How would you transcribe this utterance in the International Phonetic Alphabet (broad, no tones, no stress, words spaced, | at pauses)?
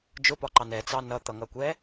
d͡ʒʊpɒǃɑ nɛt͡sɑ nʌt̪ʌŋʌkʷɛ